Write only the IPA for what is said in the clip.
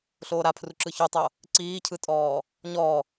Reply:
ɬ oː ɾ a pʰ r u ǁ ɯ ç u tˤ o | ǀ iː cʰ ɯ tʼ ɔː | ɲ ɔ

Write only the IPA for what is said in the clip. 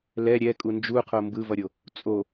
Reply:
l ɛ ɾʲ ɛ kʼ u n d͡ʒ u qʰ o m b ɯ v ʌ ɾʲ o | t͡sʼ o

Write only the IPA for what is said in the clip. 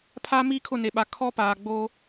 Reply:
pʰ a˦ m iː˦ kʰ ʊ˦˨ n e˨ ɓ a˨ kʰ ɔ˦ p aː˨ ɡ͡b oː˦

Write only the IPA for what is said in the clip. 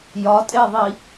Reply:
j ɒ tʼ e ðˤ i

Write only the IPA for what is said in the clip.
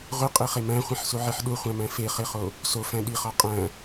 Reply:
ʁʷ i qʼ i χ e m æ̃ χʷ ĩ ħ s u ʕ i ħ ɗ u χʷ æ̃ m æ̃ f e χ e χ o | s o f æ̃ ɗ i χ ɒ qʼ æ̃

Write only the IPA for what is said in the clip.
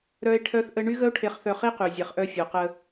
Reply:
ɾ œ˦ e̯ ʈʰ œ˦ θ ʔ ə˦ ɳ y˦ ɣ ə˦ o̯ ʈʰ e˧ χ θ œ˧ χ i˦ q y˨ zʲ ɛ˨ χ ʔ œ˧ fʲ o˨ q ə˧

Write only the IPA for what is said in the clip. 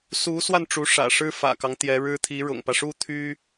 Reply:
s u˧˥ s w a˧ n ʈ͡ʂ u˧˥ ʂ ä̰˨˩ ʂ ɻ̩˥ f ä̰˨˩ k ɑ˦ ŋ t̪ j ɛ˧˥ ɻ ɻ̩˥ t̪ʰ i˧˥ ɻ ʊ̰˨˩ ŋ p ä˦ ʂ u˥ t̪ʰ y˥

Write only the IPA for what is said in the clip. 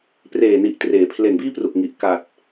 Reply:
p r eː˨˩ n i˨˩ ʔ t r eː˩˦ pʰ l e˨˩ n b iː˥˩ p r u˨˩ k̚ ŋ i˨˩ ʔ k a˨˩ t̚

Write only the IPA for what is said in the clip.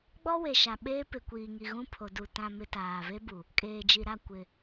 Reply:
ɡ͡b ɔ˦ w e˨ ʃ a˨ ɓ eː˦ p ɪ˨ kʷ iː˨ ŋ i˨ ɣ ũ˦ pʰ o˨ d u˨ t ã˨ m ɪ˨ t aː˨ v e˦ b u˨ | kʼ eː˨ d͡ʒ i˨ ɾ a˦˨ kʷ ɪ˨

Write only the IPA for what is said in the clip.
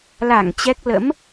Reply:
l a˧˩ ŋ t͡ɕ ɛ˦˥ k̚ l ə̰˧˥ m

